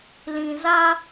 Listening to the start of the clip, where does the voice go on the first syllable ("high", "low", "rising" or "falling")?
low